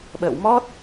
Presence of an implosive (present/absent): present